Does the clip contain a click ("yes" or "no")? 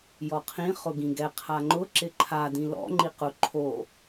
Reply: yes